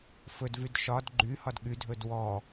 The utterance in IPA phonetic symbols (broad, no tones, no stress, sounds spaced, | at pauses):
f ɵ d v y d ʃ ɒ d ɡ͡ǃ y h ɒ d ɠ y dʱ ɵ d w ɔ